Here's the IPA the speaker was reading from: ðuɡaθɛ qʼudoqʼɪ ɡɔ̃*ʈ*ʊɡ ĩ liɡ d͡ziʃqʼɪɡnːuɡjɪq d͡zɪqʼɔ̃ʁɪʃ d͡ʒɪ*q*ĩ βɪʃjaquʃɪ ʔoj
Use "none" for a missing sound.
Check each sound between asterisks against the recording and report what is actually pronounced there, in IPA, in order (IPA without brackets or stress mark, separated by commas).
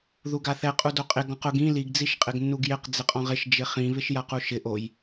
q, χ